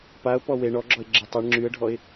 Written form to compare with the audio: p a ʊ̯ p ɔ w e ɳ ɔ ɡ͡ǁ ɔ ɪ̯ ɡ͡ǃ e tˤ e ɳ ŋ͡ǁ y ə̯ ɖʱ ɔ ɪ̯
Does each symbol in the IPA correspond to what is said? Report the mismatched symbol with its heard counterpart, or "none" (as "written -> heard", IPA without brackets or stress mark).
ɡ͡ǃ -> ɡ͡ǁ